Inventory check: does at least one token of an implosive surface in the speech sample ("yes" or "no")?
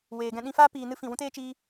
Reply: yes